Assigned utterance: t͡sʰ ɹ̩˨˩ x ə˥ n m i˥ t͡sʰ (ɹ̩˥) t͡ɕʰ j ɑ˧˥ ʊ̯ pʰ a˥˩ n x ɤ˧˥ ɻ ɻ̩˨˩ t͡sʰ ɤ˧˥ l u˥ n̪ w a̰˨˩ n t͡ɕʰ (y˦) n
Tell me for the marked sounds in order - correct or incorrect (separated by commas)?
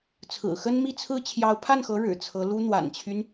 correct, correct